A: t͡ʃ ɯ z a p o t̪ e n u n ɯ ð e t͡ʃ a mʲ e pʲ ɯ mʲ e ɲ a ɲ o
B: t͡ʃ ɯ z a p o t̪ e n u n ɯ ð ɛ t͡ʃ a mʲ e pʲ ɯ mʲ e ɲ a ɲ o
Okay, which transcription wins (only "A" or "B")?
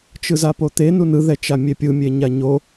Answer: B